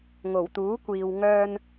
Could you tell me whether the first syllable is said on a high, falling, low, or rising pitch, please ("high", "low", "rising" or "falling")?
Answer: low